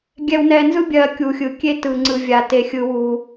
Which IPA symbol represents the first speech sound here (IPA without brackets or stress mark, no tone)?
ɡʲ